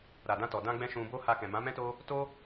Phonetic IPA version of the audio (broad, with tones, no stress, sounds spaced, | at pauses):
ɾ a˨ d ã˧ t ɔ˨ d ã˧ ɡ͡b ɛ̃˧ ʃ ũ˧ b o˦ h a˧ k ɛ̃˨ m ã˨˦ m ɛ̃˦ t o˦ | t o˦